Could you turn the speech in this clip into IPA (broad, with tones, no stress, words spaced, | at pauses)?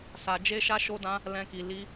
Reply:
sa˧ d͡ʒe˦ʃa˦ʃo˦dã˦ | lɛ̃˦ki˧ li˧